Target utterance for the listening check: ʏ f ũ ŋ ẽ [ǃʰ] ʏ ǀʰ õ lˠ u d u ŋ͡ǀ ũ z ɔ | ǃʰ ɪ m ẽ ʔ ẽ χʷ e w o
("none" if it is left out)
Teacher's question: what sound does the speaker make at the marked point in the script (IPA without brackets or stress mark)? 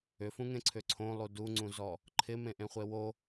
ǀʰ